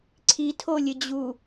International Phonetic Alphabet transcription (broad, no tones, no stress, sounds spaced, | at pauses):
ǀʰ i tʰ o lʲ ɘ d͡ʑ u